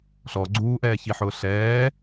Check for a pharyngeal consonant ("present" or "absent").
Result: present